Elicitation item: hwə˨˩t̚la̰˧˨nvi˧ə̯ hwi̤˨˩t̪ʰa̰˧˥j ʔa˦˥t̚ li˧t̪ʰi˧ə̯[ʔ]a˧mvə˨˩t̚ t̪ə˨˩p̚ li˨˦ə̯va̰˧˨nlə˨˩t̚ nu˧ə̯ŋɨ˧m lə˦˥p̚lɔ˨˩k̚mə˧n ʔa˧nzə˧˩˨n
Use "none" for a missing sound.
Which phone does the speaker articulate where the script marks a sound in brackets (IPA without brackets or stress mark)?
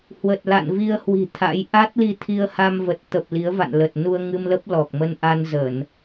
h